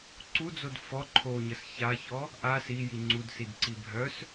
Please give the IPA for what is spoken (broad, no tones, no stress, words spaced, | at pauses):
ǀud͡zod fɔ ǃʰoɲəs çaçɔ | ʔa siji ŋ͡ǀudsidǀi bʱœs